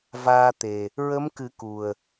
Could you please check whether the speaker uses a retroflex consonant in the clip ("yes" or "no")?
no